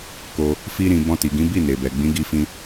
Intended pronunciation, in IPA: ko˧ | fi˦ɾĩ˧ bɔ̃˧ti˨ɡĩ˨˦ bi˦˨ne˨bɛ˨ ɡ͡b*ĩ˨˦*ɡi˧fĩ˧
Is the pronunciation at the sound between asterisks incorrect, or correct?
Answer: correct